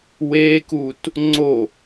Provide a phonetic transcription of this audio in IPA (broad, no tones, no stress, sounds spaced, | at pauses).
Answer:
w e k u t | ŋ͡ǀ o